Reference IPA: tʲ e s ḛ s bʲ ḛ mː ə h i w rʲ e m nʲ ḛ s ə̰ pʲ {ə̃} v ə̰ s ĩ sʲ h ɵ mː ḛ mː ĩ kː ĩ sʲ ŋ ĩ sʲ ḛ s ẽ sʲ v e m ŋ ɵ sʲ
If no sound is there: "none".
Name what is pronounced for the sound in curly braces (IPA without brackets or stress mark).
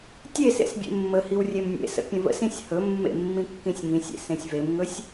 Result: ə̃